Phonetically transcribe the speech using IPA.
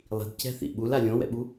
lˠi̤dcɛ̤θḭ ɓula lʲõwɛ̰ɓu

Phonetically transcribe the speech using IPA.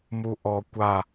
muʔɔ kʷa

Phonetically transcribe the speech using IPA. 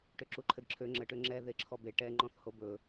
ʈøǁuǃʰɘdǁʰø ŋ͡ǁə ʈøŋ͡ǁɛ ðeǁʰɔbe ʈɛ ŋ͡ǃɔ̃θhobɵ

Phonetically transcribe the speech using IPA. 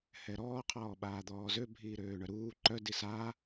hɛɾɔː qʰɔːɓaːd̪ɔːzø bʱiːɾøːɳœɾuː ǃœ disa

